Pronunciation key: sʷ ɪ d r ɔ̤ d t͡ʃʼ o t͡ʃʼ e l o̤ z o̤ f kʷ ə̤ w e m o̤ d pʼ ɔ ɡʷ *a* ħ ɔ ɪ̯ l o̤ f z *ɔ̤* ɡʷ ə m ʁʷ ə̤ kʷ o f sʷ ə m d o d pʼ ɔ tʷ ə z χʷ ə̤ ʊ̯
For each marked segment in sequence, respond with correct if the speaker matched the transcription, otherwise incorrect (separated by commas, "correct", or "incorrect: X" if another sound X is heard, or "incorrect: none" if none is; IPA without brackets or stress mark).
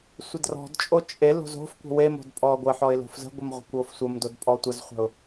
incorrect: ə, incorrect: ə̤